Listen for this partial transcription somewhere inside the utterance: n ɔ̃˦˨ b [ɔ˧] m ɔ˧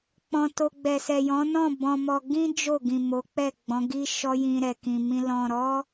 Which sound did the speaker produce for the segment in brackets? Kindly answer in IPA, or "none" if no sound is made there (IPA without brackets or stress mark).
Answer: ɔ̃˧